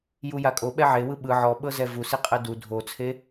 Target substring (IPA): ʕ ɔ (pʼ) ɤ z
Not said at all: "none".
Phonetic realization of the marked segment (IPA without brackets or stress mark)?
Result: ɓ